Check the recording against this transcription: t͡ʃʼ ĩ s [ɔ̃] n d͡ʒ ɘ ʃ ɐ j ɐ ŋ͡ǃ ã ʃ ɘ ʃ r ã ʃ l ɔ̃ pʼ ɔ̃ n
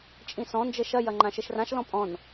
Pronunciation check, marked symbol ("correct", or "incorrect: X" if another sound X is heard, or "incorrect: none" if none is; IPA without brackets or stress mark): correct